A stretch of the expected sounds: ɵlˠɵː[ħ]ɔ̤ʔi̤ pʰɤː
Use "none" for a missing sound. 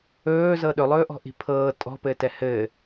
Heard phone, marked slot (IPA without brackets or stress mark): ʔ